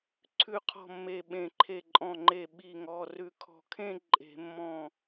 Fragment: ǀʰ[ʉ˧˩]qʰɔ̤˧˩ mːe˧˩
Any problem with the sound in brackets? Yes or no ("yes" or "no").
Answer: no